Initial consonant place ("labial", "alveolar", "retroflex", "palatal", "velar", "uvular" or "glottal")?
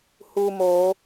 glottal